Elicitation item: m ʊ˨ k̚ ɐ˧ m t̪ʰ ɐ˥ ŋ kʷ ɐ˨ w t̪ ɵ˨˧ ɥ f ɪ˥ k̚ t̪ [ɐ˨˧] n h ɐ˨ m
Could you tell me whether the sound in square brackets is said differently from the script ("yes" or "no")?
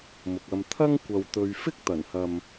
yes